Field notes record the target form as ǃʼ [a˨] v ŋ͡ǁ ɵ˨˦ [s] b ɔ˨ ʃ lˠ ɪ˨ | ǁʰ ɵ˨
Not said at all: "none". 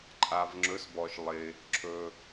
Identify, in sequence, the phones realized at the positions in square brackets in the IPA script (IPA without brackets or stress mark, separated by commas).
a˨, s